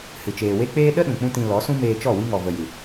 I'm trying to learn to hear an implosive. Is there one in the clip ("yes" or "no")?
yes